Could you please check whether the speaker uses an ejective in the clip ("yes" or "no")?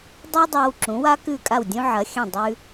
yes